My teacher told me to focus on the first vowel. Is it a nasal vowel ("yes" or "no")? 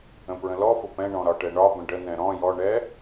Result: yes